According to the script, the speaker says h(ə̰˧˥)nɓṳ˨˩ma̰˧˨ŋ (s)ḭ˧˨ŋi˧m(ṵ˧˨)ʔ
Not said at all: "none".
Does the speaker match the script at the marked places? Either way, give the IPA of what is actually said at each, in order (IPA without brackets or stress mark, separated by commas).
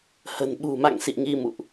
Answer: ə̤˨˩, s, ṵ˧˨